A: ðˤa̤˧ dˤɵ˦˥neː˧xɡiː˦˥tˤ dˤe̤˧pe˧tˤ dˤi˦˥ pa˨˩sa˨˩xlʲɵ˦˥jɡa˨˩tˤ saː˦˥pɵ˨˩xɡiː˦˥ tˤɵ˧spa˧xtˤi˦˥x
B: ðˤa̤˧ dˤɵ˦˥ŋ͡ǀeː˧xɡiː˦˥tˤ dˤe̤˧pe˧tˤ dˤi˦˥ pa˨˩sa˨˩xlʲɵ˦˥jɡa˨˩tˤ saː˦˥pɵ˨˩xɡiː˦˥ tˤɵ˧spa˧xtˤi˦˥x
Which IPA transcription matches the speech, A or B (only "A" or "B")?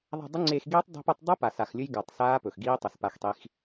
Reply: B